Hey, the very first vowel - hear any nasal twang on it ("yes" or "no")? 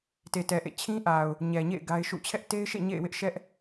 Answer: no